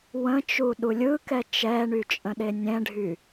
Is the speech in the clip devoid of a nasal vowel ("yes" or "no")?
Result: no